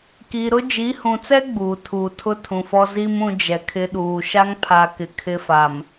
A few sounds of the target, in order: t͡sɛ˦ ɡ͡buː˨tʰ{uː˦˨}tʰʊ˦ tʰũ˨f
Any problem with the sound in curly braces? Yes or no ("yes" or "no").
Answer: yes